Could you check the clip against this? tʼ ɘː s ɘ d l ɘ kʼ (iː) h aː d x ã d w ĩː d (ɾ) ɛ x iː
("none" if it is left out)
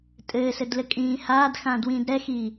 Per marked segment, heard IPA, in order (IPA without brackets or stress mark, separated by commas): ĩː, ɾ